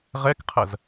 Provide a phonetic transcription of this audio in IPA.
ʁɛkqʰɐz

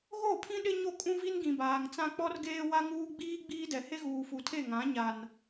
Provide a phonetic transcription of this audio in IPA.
ɣo˦˨pʰĩ˦ ɗɪ˦ɲo˦˨ kʼũ˦vi˦n ɡĩ˨baː˨ŋt͡sã˦ k͡pɔ˦rɡeː˦wa˦ŋuː˦ ɡ͡biː˦ ɡ͡biː˦dɛ˨ he˦ɣuː˨fu˨tʰe˦˨ ŋã˨˦ɲa˨n

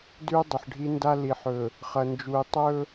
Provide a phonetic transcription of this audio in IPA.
dʉ˦ɪ̯dˤɨ˨ħɖʱi˦nda˦ li˨ħɵ˨ | χɐ˨nd͡ʒu˨ɪ̯ tˤɵ˦

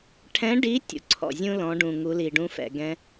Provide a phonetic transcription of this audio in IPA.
ʈʰɛ̃˧˥ɖi˧˥ tʲṵ˩ ǀʰɔ̰˩zʲũ˥ lɔ̃˩˧ɖũ˩ ŋu˩˧li˩ɖũ˧˥fɛ̰˩ ɡɛ̃˧

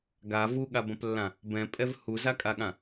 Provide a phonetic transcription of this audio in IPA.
ɡa vuɠabɐ̃plːã | bɛ̃pʼɛv huzakʼaɠã

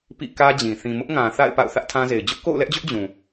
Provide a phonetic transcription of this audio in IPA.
pḭ˦˨kä˦d͡ʑĩ˨ θĩ˨mʊ˦ʔŋã˨ θa̰˦˨ɪ̯ pa̰˦˨ʊ̯θä˦ʔtʰã˦ze˨ɪ̯ d͡ʑʊ˦ʔko̰˦˨ʊ̯lɛ˦ʔd͡ʑʊ˦ʔ d͡ʑũ˨

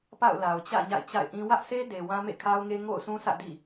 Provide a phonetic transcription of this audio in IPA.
pa̰˦˨ʊ̯la˨ʊ̯t͡ɕä̰˦˨ ɲa̰˦˨ɪ̯t͡ɕa̰˦˨ɪ̯ʔĩ˦ wä˦ʔse˦de˨ wã˦mḛ˦˨kʰa˦ʊ̯ŋe˦ ŋo̰˦˨ʊ̯sʰũ˦ sä̰˦˨dḭ˦˨

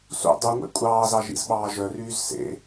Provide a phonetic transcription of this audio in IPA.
sṵ dˤyŋʷḛ kʷʼɑːzɑ ʒḭzɓɑːʒœryːz sḛ

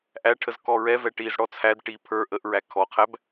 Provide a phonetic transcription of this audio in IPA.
ʔæʈʰəz kɔɹɛvɛ ʈiːzɽɔt͡sʰædʈiː pʰə˞ ʔəʔɹæ kʰɔqʰæb

